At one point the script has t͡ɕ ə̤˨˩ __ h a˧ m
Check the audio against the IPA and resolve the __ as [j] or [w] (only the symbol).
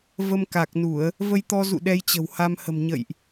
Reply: w